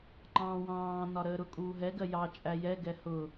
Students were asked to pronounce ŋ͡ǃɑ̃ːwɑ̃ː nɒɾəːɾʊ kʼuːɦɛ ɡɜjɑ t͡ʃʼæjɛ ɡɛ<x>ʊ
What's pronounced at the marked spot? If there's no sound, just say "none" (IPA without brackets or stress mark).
h